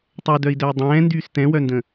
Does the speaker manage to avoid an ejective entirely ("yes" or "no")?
yes